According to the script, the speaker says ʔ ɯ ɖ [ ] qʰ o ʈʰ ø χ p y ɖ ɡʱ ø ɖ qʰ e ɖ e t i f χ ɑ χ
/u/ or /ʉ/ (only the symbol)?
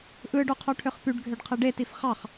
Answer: u